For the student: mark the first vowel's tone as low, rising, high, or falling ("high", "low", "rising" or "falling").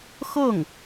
falling